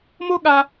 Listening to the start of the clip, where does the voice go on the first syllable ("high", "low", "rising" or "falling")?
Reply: high